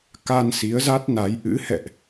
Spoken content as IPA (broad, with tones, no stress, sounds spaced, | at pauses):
k a˧ n s i˨˦ ə̯ z a˦˥ t̚ n a˨˦ j ʔ ɨ̰˧˥ h ɛ̰˧˨ ʔ